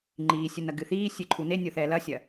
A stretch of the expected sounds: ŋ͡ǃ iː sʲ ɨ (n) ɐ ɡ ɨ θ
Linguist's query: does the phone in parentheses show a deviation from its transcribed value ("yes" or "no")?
no